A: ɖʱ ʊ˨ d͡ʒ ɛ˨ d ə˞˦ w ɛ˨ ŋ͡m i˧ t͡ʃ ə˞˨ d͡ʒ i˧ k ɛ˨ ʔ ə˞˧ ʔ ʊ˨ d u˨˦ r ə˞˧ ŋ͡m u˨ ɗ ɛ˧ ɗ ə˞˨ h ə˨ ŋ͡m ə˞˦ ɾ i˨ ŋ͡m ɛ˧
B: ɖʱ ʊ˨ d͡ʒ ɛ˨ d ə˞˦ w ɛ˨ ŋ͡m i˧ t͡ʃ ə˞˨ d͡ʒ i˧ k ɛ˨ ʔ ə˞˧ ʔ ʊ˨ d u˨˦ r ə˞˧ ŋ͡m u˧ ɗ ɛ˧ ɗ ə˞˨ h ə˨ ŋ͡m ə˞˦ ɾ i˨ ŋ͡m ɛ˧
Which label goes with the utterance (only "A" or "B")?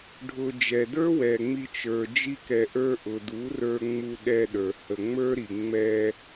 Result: B